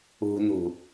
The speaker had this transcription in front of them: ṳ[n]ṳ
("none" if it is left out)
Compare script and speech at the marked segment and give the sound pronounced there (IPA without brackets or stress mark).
n